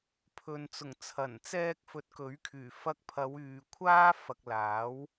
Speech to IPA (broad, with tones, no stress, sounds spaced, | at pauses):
pʰ ɵ˨ n t͡s ʊ˨˩ ŋ t͡sʰ ɐ˨˩ n t͡s ɛː˧ k̚ f ɵ˨˥ t̚ k ɵ˨˥ ɥ kʰ yː˨˩ f ɐ˧ k̚ pʰ ɐ˨˧ w yː˨ kʷʰ aː˥ f ɐ˨ k̚ l aː˨˥ w